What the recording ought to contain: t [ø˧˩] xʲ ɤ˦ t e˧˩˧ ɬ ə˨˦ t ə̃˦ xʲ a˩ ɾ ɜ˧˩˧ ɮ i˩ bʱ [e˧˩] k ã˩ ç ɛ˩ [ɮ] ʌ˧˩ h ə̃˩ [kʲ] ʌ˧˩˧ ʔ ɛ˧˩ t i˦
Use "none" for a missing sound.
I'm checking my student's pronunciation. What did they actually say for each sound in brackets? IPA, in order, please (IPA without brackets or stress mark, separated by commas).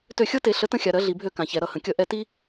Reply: ø˧˩, ø˧˩, ɾ, kʲ